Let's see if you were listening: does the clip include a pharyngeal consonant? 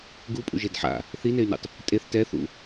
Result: yes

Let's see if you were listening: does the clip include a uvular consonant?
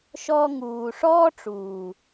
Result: no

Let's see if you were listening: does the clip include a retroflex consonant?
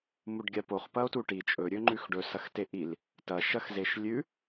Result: yes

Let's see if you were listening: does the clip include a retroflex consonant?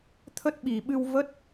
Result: no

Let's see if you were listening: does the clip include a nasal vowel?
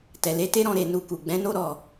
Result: yes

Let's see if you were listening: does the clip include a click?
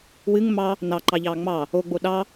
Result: yes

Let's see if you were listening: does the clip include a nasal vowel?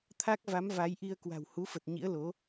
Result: no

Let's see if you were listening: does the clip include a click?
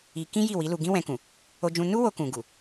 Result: no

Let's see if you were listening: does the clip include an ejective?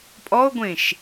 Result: yes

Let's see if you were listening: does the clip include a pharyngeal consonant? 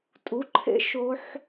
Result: yes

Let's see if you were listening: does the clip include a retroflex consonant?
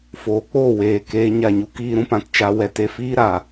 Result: no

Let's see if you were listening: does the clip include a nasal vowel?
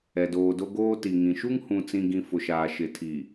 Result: yes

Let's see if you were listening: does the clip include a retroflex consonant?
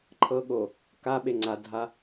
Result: no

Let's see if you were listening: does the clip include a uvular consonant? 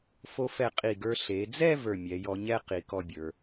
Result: yes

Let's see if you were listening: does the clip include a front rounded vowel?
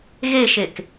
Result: no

